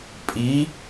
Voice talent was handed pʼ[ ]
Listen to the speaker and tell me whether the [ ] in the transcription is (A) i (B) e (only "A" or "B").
A